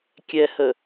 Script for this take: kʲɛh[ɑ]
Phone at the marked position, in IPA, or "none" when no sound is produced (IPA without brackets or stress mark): ə